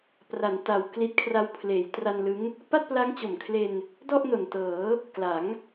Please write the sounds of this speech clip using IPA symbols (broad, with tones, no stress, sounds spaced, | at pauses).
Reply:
p r a˩˦ n t a˨˩ w k l i˦˥ t̚ kʰ r a˦˥ w pʰ l eː˩˦ j t r a˧ n l ɯ˦˥ ŋ | p a˥˩ t̚ p l a˦˥ ŋ t͡ɕ o˨˩ m kʰ l e˧ n | d ɔ˥˩ ʔ n o˨˩ n t ɤː˩˦ | k l a˩˦ ŋ